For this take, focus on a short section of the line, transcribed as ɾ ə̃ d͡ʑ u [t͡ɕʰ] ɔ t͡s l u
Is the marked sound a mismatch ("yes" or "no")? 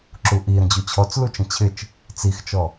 no